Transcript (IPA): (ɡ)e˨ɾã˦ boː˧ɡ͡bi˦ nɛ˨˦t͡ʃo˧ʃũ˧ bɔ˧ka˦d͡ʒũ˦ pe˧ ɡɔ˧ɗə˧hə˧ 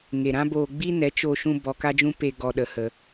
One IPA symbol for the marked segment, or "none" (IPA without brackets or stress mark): ŋ